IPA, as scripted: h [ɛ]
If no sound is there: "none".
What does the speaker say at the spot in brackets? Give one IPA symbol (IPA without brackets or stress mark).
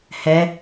ɛ